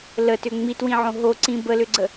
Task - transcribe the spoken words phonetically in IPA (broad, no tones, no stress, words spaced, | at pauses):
lətʏ ŋ͡mitwĩʕõ ɦoǀĩ bəlʏɡ͡ǀə